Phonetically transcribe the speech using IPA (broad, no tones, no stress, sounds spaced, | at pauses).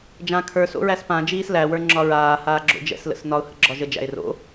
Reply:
d͡ʒ ã kʰ ə˞ s o̰ ɹ æ s p ã d͡ʒ iː s l æ w ə˞ ŋ͡ǁ ɒ ɹ aː h aː ɡ͡ǁ o̰ d͡ʒ ɛ̰ s l ə̰ s n ɒ ʊ̯ h ə̰ ɡ͡ǁ ɒ ʒ ə d͡ʒ æ̰ ɪ̯ r o̰